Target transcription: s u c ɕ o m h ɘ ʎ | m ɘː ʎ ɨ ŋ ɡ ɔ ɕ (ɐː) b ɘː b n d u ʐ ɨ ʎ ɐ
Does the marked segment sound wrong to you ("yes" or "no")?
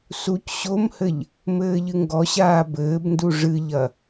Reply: yes